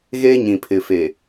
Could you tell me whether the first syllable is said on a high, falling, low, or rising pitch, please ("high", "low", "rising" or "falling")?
high